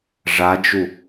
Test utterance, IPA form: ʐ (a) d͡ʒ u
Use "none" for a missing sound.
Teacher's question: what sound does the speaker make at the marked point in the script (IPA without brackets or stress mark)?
a